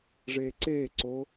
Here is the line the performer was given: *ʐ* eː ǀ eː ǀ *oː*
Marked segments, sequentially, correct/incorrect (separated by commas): correct, correct